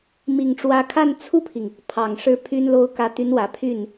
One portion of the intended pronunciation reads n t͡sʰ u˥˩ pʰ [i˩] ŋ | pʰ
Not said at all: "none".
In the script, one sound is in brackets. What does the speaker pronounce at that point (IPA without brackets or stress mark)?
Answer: i˩